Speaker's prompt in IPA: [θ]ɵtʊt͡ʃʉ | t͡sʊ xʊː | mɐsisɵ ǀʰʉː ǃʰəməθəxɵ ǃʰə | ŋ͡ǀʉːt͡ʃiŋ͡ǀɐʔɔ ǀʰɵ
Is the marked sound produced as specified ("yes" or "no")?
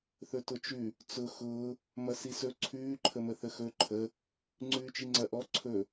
yes